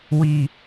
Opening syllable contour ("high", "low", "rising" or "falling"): low